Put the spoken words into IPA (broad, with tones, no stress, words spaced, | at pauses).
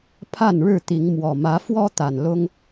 pʰa˥˨nɻɻ̩˥˨t̪i˨˦ŋ mwɔ˨˩ mä˨˦fwɔ˦ t̪a˨˩nlʊ˦ŋ